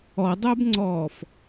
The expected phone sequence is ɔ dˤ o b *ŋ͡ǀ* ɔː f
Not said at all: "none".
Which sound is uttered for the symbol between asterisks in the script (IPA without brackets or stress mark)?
ŋ͡ǀ